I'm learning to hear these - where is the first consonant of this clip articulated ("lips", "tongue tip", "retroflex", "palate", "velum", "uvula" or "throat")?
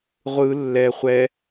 uvula